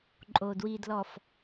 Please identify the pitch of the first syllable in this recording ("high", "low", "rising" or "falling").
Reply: low